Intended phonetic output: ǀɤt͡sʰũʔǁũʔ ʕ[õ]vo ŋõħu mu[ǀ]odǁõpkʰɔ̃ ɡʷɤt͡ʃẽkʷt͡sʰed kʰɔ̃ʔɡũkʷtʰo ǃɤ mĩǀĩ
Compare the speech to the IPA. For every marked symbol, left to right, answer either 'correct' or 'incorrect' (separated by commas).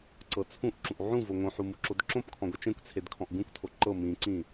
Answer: incorrect, incorrect